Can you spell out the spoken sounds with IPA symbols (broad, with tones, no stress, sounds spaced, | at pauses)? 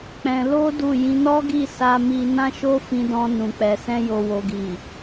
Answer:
k͡p ɛ̃˧ l o˦ d u˦˨ j ĩ˧ n ɔ˦ ɡ i˦˨ s a˧ m i˧ n ã˦ ʃ o˦ f ĩ˧ d ɔ̃˧ n ũ˨ k͡p ɛ˨ s ɛ̃˧ j o˨ w o˨ ɡ i˨